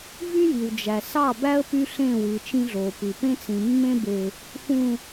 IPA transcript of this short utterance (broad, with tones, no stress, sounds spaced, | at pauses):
v y˦ j i˨ w d͡ʒ æ˨ s ɑ˦˨ b æ˦ ə̯ p y˦ ɬ ẽ˦˨ w ɯ˨ t͡ʃ ĩ˦ ɮ o˨ p ɯ˨ p ẽ˦ t͡s ĩ˨ mː ẽ˦ b e˨ | f ũ˨